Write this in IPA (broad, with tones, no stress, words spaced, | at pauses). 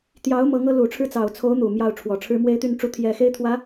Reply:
t̪jɑ˧˥ʊ̯ mɤ˧˥ŋɤ˧˥ lu˨˩ʈ͡ʂʰɻ̩˥˩ t͡sɑ˨˩ʊ̯t͡sʰo˧˥ʊ̯ n̪u˨˩ mjɑ˥˩ʊ̯ʈ͡ʂʰwɔ˨˩ʈ͡ʂʰɻ̩˥ mwe˥ɪ̯t̪y˥˩n ʈ͡ʂu˧˥t̪ʰjɛ˨˩ xe˥ɪ̯t̪ʰwä˧˥